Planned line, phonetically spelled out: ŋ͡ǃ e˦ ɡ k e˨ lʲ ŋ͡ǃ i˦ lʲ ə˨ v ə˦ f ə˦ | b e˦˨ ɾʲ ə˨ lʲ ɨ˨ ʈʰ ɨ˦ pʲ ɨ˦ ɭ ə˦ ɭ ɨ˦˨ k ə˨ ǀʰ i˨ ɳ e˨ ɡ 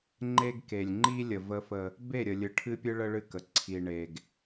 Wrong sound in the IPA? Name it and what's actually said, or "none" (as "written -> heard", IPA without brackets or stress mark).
none